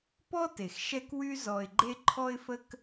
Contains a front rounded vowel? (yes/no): yes